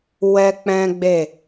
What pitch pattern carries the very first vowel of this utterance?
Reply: high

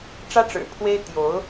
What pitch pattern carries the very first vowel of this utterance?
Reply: high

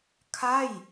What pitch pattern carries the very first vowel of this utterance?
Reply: falling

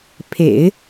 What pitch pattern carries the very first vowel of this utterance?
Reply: low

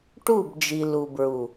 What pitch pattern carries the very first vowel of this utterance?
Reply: falling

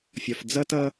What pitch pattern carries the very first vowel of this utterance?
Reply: low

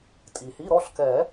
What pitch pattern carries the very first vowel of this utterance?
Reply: low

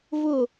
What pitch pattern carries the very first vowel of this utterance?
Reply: falling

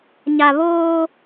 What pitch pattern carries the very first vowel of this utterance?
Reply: low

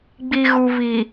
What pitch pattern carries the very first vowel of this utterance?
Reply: low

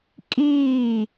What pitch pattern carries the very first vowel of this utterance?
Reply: falling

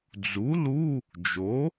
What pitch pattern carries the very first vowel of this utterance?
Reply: rising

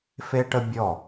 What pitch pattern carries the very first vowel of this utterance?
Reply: high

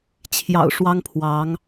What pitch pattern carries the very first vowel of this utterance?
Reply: low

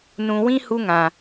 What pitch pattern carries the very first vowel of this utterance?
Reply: low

